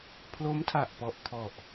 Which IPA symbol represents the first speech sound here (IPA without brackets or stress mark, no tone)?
pʰ